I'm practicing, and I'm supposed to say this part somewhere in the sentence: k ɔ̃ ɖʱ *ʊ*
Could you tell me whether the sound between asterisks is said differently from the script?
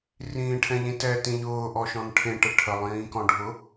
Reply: no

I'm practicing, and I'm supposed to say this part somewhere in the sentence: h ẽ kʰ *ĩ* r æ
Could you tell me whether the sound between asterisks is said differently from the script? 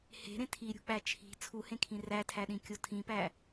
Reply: no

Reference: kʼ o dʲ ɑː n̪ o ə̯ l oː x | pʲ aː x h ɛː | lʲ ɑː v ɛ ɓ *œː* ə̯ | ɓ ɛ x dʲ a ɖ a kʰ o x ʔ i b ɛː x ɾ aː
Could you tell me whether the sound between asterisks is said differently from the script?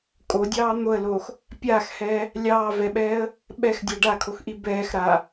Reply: yes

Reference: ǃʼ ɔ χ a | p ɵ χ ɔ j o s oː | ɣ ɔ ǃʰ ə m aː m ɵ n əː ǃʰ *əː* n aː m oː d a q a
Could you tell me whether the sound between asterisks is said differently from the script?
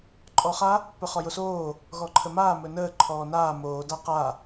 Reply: yes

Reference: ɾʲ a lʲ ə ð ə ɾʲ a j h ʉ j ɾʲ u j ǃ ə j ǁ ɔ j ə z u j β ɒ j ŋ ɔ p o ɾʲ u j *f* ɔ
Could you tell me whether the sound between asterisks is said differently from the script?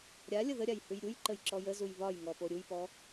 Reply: yes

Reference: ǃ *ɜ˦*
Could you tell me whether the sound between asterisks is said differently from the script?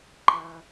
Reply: no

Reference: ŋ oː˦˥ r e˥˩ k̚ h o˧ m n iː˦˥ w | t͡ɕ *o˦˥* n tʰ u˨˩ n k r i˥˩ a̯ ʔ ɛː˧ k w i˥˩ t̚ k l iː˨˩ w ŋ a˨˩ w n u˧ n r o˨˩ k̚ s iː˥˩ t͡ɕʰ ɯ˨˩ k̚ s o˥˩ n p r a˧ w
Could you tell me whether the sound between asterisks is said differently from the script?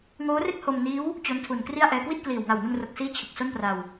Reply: no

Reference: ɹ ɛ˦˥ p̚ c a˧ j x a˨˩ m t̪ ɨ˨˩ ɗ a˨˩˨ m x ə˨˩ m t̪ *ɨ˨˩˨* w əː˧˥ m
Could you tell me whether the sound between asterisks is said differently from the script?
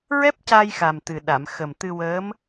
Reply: yes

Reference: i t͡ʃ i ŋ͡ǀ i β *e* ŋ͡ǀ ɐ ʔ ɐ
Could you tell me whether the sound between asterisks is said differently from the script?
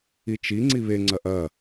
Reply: no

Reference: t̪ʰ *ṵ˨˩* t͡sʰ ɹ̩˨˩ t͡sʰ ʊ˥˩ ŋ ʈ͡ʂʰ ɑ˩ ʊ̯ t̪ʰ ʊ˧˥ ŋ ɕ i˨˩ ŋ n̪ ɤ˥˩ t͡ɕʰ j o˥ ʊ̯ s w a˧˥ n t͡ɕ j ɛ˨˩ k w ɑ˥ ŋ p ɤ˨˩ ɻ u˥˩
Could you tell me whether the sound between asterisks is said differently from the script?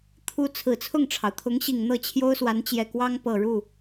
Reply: yes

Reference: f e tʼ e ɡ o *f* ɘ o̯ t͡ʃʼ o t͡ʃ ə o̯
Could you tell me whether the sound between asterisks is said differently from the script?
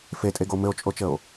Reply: yes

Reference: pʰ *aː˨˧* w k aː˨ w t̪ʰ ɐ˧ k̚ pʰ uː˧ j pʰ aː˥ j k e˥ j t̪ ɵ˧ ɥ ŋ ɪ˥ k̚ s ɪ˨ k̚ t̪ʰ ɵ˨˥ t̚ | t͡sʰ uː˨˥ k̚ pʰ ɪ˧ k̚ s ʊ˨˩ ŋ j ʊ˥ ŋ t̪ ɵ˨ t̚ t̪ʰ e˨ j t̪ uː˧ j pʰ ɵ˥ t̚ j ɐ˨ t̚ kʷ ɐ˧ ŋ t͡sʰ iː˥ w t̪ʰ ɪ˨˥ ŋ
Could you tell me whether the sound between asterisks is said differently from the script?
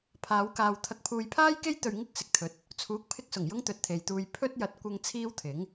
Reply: no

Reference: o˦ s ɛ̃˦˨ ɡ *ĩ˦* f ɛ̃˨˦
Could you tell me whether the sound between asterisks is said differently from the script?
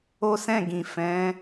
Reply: yes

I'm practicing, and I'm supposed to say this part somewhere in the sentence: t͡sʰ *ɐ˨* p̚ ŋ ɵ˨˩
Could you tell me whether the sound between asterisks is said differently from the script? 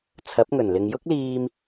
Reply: yes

